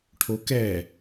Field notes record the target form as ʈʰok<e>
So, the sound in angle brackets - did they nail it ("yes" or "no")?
no